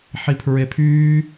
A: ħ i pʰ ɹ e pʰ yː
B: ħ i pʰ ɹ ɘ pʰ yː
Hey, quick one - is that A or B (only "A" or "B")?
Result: A